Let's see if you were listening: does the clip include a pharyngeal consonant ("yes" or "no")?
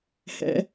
no